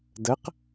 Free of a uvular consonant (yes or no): no